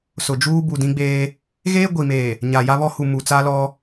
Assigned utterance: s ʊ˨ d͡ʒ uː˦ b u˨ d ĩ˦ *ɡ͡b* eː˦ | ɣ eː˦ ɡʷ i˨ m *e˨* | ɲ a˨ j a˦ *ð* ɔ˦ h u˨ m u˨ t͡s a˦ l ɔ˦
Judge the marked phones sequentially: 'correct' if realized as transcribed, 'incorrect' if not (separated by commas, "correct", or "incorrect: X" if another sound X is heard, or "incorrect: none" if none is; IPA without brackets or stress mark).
correct, incorrect: eː˨, incorrect: β